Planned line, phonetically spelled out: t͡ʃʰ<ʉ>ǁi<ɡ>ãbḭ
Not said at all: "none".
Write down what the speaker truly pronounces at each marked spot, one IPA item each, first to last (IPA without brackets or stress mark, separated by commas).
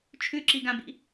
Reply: ʉ, ɡ